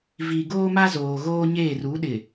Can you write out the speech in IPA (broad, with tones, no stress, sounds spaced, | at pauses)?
v i˨ ɡ oː˦ m a˦ z oː˨ ɣ oː˦ ɲ eː˦˨ r u˨˦ ɗ ɪ˨